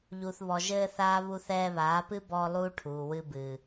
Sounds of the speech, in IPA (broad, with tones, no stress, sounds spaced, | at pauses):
ʎ u˨ θ β ɔ˨ ʒ ɘː˧ θ aː˦ β u˧ θ ɛː˧ β aː˨˦ p ɨ˦ b ɔː˧ lˠ uː˧ ʈʰ uː˨ w ɨ˧ b ɨː˨